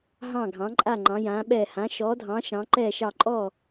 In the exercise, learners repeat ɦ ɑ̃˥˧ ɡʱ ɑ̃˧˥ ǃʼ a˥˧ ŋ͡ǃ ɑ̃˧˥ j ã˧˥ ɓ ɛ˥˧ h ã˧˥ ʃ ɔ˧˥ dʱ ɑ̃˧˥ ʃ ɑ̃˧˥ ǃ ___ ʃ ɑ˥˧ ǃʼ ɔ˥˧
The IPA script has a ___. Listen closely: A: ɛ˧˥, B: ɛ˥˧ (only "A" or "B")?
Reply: B